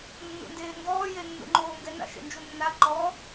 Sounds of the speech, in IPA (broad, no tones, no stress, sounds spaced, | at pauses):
nː ṵ n d eː ŋ ɡ ɔː j e nː ṵ ŋ͡ǃ oː ŋ ɡ ɛ n a̰ ʃ ḛ n d͡ʒ u nː a ǃ ɔ